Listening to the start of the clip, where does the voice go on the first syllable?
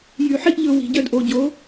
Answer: low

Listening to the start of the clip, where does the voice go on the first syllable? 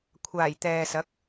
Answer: low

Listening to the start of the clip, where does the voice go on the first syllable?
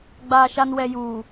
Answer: low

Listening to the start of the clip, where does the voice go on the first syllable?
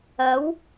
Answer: rising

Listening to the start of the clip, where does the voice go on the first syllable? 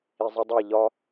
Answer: low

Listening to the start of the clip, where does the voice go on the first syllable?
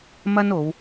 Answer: high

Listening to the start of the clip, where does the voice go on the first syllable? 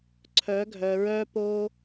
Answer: rising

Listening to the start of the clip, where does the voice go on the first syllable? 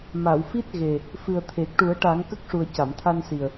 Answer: low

